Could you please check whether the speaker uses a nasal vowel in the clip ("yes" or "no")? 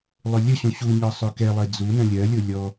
yes